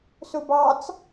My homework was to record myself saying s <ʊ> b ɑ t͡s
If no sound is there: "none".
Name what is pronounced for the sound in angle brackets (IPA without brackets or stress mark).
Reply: ʊ